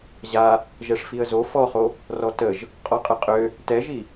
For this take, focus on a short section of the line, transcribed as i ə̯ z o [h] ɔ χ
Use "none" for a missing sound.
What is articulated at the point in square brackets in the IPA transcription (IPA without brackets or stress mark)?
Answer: f